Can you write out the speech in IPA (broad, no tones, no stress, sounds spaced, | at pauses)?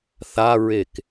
θ a ɹ e k